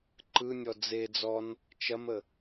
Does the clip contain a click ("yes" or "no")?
yes